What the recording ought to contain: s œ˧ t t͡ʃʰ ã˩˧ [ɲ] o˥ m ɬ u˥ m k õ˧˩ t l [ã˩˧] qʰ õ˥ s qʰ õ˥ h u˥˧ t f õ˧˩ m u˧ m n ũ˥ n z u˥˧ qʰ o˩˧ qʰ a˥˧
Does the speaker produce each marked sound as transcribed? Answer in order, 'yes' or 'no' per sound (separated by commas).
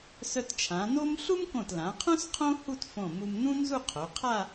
no, yes